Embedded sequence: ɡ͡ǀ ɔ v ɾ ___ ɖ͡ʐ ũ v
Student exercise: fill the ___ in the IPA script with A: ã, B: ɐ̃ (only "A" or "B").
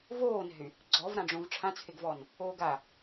A